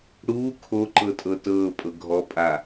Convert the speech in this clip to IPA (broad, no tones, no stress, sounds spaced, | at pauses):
ɽ uː kʰ o ǃ ɤ tʼ ɤ t ɤː pʼ ɤ ɡʱ ɔ pʼ a